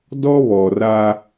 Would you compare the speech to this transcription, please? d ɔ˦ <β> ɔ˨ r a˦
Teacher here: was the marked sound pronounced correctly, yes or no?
yes